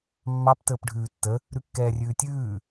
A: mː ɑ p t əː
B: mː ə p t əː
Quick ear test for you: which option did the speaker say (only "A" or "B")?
A